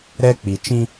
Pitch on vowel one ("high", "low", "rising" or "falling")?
high